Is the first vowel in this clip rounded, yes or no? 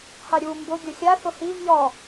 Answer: no